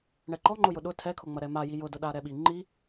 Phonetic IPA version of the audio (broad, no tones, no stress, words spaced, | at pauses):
ɳɛǃɔ ŋ͡ǃʊjʊɗʊ tʰɛkʰʊŋ͡mɐ ɾɛma jijʊdʊ ɗaɾɛɓi ŋ͡ǃi